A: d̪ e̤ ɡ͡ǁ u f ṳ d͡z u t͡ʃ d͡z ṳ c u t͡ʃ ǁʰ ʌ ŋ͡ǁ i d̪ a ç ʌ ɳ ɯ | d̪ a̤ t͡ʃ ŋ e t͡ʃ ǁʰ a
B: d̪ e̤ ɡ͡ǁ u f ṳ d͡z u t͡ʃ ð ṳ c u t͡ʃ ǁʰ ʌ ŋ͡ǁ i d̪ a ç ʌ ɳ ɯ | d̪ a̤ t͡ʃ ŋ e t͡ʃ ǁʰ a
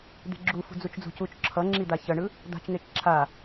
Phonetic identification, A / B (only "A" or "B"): A